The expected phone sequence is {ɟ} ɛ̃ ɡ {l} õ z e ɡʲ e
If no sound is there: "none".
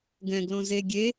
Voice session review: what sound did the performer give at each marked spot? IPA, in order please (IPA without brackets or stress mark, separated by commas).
ɡ, l